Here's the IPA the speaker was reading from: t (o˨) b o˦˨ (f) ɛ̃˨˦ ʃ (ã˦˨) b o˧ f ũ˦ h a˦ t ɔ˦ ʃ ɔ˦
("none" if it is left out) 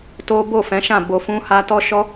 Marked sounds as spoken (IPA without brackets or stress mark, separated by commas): o˦, f, ã˦˨